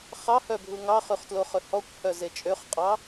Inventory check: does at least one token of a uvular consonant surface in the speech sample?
yes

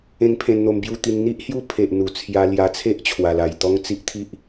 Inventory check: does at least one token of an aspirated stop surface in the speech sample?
yes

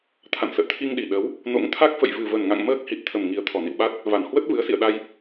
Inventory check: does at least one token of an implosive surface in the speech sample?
yes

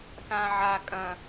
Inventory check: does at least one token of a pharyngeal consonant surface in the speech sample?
yes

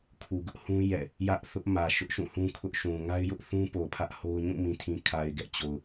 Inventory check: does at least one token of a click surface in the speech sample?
no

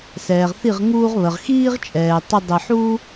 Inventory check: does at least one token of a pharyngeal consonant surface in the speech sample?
yes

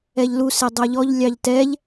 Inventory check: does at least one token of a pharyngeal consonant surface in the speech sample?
no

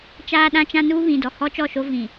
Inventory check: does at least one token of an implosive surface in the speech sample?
yes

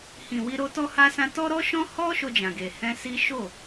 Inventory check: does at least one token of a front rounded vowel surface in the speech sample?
no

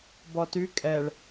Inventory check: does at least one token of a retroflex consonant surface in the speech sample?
yes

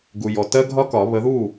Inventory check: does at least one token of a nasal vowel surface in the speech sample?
no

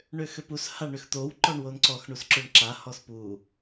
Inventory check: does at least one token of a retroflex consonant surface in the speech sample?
yes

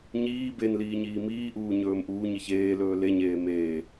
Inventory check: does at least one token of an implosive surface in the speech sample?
no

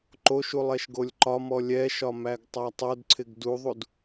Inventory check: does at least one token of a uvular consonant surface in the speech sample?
no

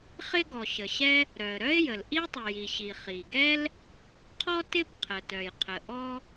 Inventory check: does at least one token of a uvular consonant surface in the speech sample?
yes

